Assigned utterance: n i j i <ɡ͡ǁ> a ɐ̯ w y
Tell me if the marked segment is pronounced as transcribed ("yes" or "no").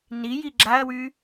yes